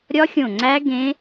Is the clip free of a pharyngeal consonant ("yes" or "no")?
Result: yes